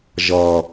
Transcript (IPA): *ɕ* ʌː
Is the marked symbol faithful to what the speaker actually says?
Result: no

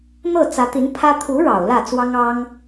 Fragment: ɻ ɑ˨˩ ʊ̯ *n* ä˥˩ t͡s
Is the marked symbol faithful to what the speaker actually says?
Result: no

